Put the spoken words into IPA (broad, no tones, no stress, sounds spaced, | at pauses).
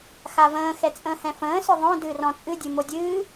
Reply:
x a v ə̃ː x ɛ t͡sʼ ə̃ː h ɛ̃ f ə̃ː s ʏ ðˤ õ d ɨː r ɔ̃ t͡sʼ ɨ dʲ ɨ m o dʲ ɨː